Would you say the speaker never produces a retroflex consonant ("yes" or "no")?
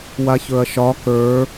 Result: yes